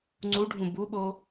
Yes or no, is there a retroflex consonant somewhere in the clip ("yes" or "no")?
yes